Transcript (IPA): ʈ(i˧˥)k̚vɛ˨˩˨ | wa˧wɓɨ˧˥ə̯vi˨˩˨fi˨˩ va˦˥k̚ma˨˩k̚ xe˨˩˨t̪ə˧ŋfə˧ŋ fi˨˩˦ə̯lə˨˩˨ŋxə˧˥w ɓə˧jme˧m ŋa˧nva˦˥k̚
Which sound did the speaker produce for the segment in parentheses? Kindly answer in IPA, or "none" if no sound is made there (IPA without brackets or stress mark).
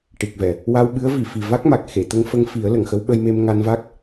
i˨˩